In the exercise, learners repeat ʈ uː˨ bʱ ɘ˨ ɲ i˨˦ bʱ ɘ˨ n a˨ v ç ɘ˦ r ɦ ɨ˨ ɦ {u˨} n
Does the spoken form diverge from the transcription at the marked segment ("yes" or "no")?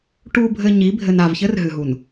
no